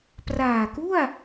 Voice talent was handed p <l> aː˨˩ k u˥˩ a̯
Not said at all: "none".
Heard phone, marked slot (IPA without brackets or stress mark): r